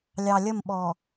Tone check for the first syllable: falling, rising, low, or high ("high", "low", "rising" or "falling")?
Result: low